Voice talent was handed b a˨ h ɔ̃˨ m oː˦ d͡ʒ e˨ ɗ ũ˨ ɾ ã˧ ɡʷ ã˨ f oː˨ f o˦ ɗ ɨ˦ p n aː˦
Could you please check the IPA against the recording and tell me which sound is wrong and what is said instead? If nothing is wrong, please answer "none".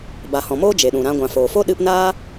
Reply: none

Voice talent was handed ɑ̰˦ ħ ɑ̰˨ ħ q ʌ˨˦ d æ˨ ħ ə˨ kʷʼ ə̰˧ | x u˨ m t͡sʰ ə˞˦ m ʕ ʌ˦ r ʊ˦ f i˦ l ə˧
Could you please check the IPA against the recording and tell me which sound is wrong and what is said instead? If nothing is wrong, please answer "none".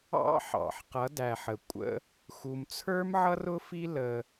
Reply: none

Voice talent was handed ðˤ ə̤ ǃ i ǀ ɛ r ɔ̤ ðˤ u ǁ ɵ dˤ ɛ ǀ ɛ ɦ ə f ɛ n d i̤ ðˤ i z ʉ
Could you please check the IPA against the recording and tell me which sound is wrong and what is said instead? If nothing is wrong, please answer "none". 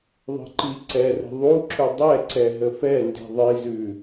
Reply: ɔ̤ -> ə̤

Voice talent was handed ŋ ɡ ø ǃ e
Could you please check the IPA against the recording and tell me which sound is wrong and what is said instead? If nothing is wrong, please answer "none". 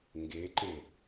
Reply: ø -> e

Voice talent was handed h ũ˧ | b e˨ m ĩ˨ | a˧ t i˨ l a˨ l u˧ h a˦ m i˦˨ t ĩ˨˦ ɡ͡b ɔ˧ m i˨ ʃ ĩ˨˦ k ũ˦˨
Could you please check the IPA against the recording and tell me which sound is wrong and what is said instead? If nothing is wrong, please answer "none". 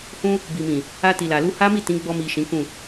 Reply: e˨ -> i˨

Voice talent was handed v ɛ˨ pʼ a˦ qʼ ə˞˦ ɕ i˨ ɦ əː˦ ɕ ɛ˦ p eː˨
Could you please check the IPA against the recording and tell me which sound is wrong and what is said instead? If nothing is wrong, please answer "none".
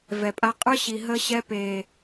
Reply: none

